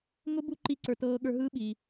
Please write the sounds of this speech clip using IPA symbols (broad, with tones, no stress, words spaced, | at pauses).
ŋʊ˦ bu˦ ǃi˦ǀə˞˧ tɤː˧ɠə˞˧ ɦɯː˦ɓi˧